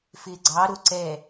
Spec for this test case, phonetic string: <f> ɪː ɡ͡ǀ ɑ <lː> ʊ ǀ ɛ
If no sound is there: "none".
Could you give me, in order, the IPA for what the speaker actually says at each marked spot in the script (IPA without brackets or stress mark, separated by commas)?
f, ɾ